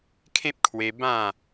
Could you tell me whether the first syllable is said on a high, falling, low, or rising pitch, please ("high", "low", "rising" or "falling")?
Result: high